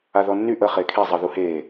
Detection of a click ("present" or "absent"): absent